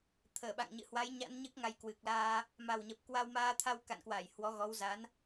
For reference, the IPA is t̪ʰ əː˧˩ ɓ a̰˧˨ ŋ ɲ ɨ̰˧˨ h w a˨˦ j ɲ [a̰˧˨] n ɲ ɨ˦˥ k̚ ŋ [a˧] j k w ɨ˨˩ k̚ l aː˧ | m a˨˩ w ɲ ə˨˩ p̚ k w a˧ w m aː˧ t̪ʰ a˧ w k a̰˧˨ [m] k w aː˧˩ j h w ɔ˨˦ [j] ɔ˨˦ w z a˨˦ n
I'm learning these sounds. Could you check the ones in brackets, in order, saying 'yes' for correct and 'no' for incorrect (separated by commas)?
no, yes, no, no